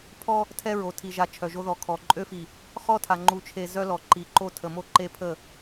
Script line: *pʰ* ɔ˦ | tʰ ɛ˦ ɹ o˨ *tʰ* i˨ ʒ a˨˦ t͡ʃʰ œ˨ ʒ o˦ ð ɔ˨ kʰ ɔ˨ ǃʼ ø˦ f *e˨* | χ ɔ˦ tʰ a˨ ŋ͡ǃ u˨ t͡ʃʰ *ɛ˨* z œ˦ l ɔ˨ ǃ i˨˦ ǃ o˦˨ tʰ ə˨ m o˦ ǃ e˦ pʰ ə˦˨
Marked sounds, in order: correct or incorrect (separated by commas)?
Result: correct, correct, incorrect, incorrect